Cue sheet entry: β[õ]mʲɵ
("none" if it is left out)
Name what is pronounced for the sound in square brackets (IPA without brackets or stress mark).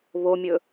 o